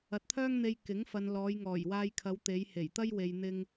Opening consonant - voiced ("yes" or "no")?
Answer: no